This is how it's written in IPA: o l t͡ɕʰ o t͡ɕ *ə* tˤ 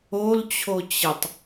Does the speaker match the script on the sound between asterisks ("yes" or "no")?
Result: yes